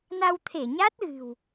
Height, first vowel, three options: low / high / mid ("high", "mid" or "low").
low